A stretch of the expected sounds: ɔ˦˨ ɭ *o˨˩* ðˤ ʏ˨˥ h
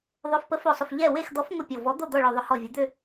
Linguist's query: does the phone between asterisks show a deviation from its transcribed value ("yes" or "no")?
no